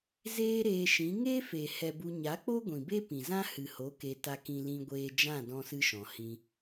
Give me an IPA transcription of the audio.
z eː˦ ɾ eː˧ ʃ ĩ˨˦ ŋ e˦ f e˨ h ɛ˧ b u˧ ɲ a˨˦ k͡p o˦ ɡʷ ĩ˨ b e˦ p ĩ˨ z ã˦ h ɨ˨ h o˨˦ k e˧ t a˧ k ĩ˧ l ĩ˧ ɡʷ eː˧ d͡ʒ ã˦˨ d ɔ̃˦ s ɨ˦ ʃ ɔ̃˨ h ĩ˧

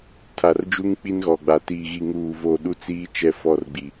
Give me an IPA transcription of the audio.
tʰ a˨ r d͡ʒ u˦ ŋ k͡p i˦ n ɣ ɔ˨ ɡ͡b a˨ t iː˨ ɣ i˨ ŋ uː˨ v o˨ ɗ u˦ t͡s iː˦ t͡ʃ ɛ˦˨ f ɔ˦˨ r ɡ͡b i˨

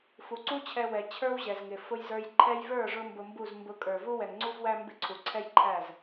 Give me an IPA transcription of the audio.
f u˨ ǀ u˦ t͡ɕʰ ɛ˧ w ɛ˨ t͡ɕʰ ə˞˦ w ʑ ɛ˨ z ŋ ɪ˨ f ʊ˦ j z ə˞˦ j ǃʰ ɛ˧ j v ə˞˦˨ ʐ ʊ˦ m b ʊ˧ m b u˦˨ z m b ʊ˧ kʼ ə˞˨ v u˦ w ɛ˨ ŋ ŋ͡ǀ u˧ v w æ˧ m b ɪ˦ ǀʰ u˨ ǀʰ ɛ˦ j ǃʰ æ˦˨ z

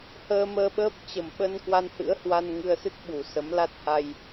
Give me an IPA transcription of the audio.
h əː˧ m əː˧ ɓ əː˦˥ p̚ t͡ɕ ə˨˩ m ɓ ə˧ n k w a˧ n h ɨ̰˧˥ ə̯ h w a˧ n ŋ ɨ˧ ə̯ s ɨ˦˥ t̚ ɓ u˨˩ s ə˨˦ m l a˦˥ t̚ h a˧ j

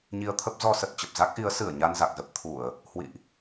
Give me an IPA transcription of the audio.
ɲ i˧ ə̯ t̪ʰ ə˦˥ p̚ z ɔ˧ s ə˨˩ t̚ t͡ɕ ə˨˩ p̚ z a˦˥ k̚ ʔ i˨˦ ə̯ s ɨ˧˩ ə̯ ɲ a˧ n z a˨˩ k̚ z ə˦˥ p̚ t̪ʰ u˧˩˨ ə̯ | h w ḭ˧˨ ʔ

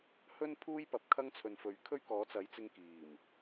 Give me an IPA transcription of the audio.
h ɵ˥ n pʰ uː˥ j p ɐ˨ p̚ kʰ ɐ˥ ŋ t͡sʰ ɵ˨ n f ɵ˨˥ ɥ kʰ ɵ˥ ɥ k ɔː˨˥ t͡s ɐ˨˥ j t͡s ɪ˧ ŋ k iː˨˩ m

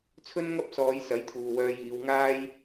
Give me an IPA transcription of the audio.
t͡sʰ ɵ˥ n ŋ ɐ˥ p̚ s ɔː˨˧ j s ɐ˨˥ j t̪ʰ uː˨ w œː˧ j iː˨˧ w ŋ aː˥ j

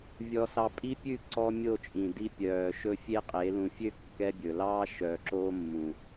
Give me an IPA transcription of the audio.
vʲ ɔ˦ s ɑ˦ pʼ i˦ pʲ ʉ˦˨ ǀ ɔ˦ mʲ o˦˨ t͡ʃʼ ĩ˨ d i˦ pʲ œː˨ ʃ ɵ˦ fʲ e˦ qʼ e˨˦ l ũ˨ fʲ ø˦ kː ɛ˦ bʲ ɵ˨ l ɑː˦ ʃ œː˨ ǁ oː˦ mː ũ˨

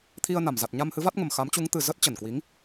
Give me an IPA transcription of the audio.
t̪ʰ i˧ ə̯ n a˧˩ m z a˨˩ t̚ ɲ a˧ m h ɨ˨˦ v a˦˥ t̚ ŋ ə˨˩ m x a˨˦ m t͡ɕ u˨˦ ŋ t̪ ɨ˨˩ z ə˦˥ t̚ t͡ɕ ə˧˩ n k w i˨˦ ŋ

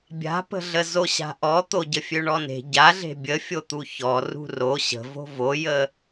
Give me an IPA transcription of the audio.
bʲ a̤ p ə̤ ɮ ə z o ɕ a̤ ʔ ɔ t̪ o ɟ ə fʲ ø ɳ ɔ n e̤ ɟ a ɮ e̤ bʲ ə fʲ o t̪ u ç ɔ r ṳ r o ɕ ə̤ v o̤ v o j ə

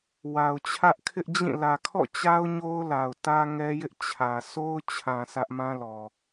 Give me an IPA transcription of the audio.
w a˨ ʊ̯ t͡ɕʰ ä˦ ʔ kʰ ɪ˦ ʔ d͡ʑ ĩ˦˨ l ä˨ kʰ ɔ̰˦˨ t͡ɕ a˦ ʊ̯ ɲ o˦ ʊ̯ l a˨ ʊ̯ t ä˦ ŋ ɛ˦ j ɪ˦ ʔ t͡ɕʰ ä˨ sʰ o˦ ʊ̯ t͡ɕʰ ã˨ sʰ ä˦ ʔ m ã˦ l ɔ˨

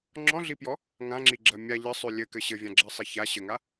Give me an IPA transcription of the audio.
ŋ͡ǁ ɔ̃ ɮ i p j ɔ | ŋ ã ŋ͡ǁ i ɡ͡ǁ ɜ mʲ a ʎ ɜ sˤ ʉ lʲ ɘ k ɘ ɕ ɘ vʲ ã ɡ͡ǁ ɜ sˤ i ç a ɕ ɘ ŋ a

